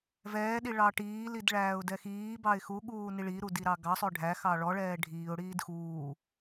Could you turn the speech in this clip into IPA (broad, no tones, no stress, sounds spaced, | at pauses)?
v ɛː ɗ i ɭ ɑ ʈ iː l i d ɭ æː ʊ̯ d ɛ x iː b ɑ ɪ̯ x u ɠ uː n i ɭ i ɾ u d i ɾ ɑ ɡ ɑ sˤ ø ɖʱ æ x ɑ ɭ ɔ ɭ ɛː ɖʱ iː ʊ̯ ɽ iː d x uː